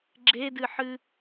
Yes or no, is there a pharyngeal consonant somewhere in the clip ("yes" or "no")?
yes